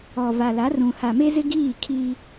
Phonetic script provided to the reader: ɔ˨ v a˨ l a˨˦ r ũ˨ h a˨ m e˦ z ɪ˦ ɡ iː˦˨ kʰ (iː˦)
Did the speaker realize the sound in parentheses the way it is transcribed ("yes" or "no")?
yes